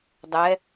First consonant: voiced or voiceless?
voiced